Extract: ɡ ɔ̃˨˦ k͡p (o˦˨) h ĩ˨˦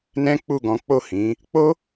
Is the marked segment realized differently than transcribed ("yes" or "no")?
no